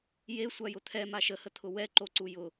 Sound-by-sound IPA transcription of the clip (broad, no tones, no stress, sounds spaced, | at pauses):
j e sʷ a j ʊ t̪ʰ ɛ m a ʃ ə h ə t̪ʰ ʊ w ɛ ǃ o ǀ u j ʊ